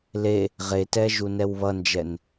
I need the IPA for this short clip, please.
le | ʁetɛ ʒunɛwβʌnd͡ʒɛn

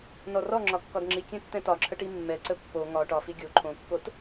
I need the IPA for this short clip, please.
nɔrɔŋ͡ǁɒ kːɒdŋ͡ǁikʲɛ̃ tːɛ̃tɒǁʰə ʈimːɛǀə pːo ŋɒ ʈɒfi ɡʲo ǃʰõkːot

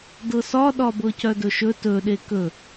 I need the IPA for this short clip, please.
dɤsɒɗɒbɤ cœdɵʃɵ tɵɗe kɵ

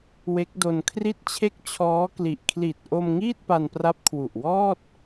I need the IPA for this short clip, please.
we˦˥k̚do˧nkʰri˥˩t̚t͡ɕʰe˥˩k̚ t͡ɕʰɔː˦˥kli˨˩ʔ kʰli˨˩t̚ ʔo˧m ŋiː˥˩t̚pa˧npra˦˥p̚ kʰwu˨˩ʔwɔː˥˩t̚

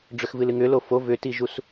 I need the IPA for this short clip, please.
ɖ͡ʐʏxvɨlɨŋʏ lofo vʏtiʒus

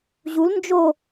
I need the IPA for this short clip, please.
ʑul nd͡ʒo

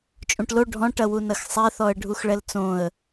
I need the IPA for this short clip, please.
t͡ʃʼũʈlo ɖʱɔ̃ʈɐwu nɐxsˤɛθɔə̯ ɖʱuxɭɛlt͡sõə̯

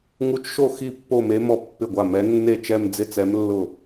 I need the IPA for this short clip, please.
ŋu˧˥t͡ʃʃo˥˩ xi˥˩ pːo˥˧me˧˥ mɔ˥˩pːɪ˥˩ɡʷa˥˩ mɛ˧˥ nːe˥˩t͡ʃɛ˥˧m d͡zɪ˥˧t͡sɛ˧˥m lːʊ˥˩

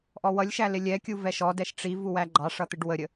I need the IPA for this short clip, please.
ʔɔwʌlʲʃæ lɪlʲɛkʲu vɛʃɔdɛʃ ʈ͡ʂiv uwæɡ͡ǃɑʂʌ t̪ɪɖwəɾʲə

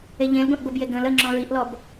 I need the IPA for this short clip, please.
eʎẽlɡʷẽʔ ɡʷəbje ɡə̃l ə ŋ͡ǁɔ̃ɹiʔlɔb

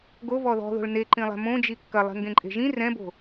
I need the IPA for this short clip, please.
ɡovɔ ðɔ̤ðo̤ɭ neǃĩlˠɛ̤ mõd͡ʒi kːɐlˠe̤ŋɡẽǃʼe̤ ʒĩ rɛ̃bo̤

